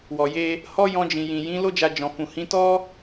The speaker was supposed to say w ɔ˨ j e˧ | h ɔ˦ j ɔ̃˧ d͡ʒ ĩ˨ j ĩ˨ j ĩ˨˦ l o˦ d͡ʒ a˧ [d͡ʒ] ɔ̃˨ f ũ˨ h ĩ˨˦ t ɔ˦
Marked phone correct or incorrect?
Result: correct